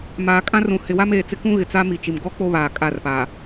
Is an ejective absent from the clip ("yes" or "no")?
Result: no